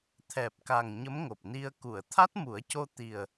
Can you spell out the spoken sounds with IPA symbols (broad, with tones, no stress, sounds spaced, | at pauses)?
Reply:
t̪ʰ ɛ˨˩ p̚ k a˨˩ ŋ ɲ ə˧˥ m ŋ o˨˩ p̚ n i˧ ə̯ k u˨˩˨ ə̯ t̪ʰ a˦˥ t̚ m u˨˩˦ ə̯ c o˧ t̪ i˨˩ ə̯